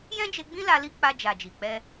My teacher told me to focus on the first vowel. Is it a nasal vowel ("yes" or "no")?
yes